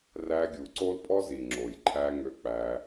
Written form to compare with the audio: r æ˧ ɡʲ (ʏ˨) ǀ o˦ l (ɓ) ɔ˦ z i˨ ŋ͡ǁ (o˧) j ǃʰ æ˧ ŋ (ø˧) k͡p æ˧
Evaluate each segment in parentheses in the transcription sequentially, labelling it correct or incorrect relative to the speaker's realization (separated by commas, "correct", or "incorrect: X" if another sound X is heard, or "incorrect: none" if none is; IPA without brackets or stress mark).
incorrect: u˨, incorrect: pʼ, incorrect: o˨, correct